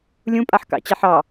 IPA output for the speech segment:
lʲ ũ pʼ a ħ k ɑ̰ t͡ɕ a ħ ɑ

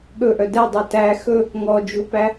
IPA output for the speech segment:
ɠ ɵ ʔ œ d ɛ dˤ o t æ x ɵ | ŋ ɔ d͡ʒ u p æ

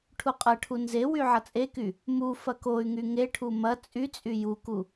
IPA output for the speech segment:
ʈʰ u qʼ ɐ ʈʰ u n z e w y ʕ ɐ t͡sʼ e k y | m u f ɐ k o y̯ ŋ y ŋ e ʈʰ u m ɐ t͡sʼ y t͡sʼ y j u k u

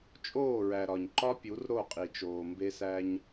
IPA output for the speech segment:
t͡ʃʼ oː˦˨ ɹ æ˨ ɾ ɒ˨ ɲ ǃ ɒ˦ pʲ u˨˦ r ɾ o˦˨ qʼ i˨ t͡ʃ oː˨ m b e˦ s æ˦ ɲ

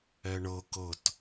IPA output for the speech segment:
ɛ ɳ ɤ k ɤ t

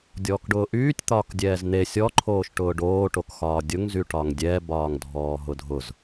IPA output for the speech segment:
dʲ ɔː k ɖ ʊː ʔ yː tʲ t̪ ɒː k dʲ ɛː z n̪ e sʲ ɔ ǃʰ oː ʃ ʈ ʊː ɖ oː ʈ o k x ɒː dʲ ʊ ŋ z y ʈ ɒ ŋ dʲ ɛ b ɒː ŋ dʱ ɔː ɦ ʊ dʱ ʊ z

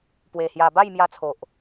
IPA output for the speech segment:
p w e˧ h j a˧ b a˥˧ j m j a˧ t͡sʰ o˨ ʔ

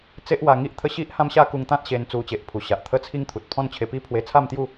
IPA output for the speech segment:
t͡s e˦ ʔ w a˧ ŋ i˦ ʔ t̪ʰ ə˥˧ ɕ i˦ ʔ h ã˦ m ɕ a˦ k u˧ ŋ t̪ ã˦ t̚ ɕ e˧ n t͡s u˧ t͡ɕ e˨ ʔ pʰ u˨˩ ɕ a˨ ʔ t̪ʰ ə˦ t͡sʰ i˦ ŋ t̪ʰ u˨ t̚ pʰ ɔ̃˥˧ n t͡ɕʰ e˧ p i˦ pʰ w e˧ t͡sʰ a˥˧ m t̪ j u˥˧

